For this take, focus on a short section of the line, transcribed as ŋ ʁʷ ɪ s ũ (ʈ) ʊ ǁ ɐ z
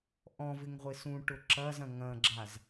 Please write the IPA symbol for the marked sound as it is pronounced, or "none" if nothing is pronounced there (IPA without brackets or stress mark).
ʈ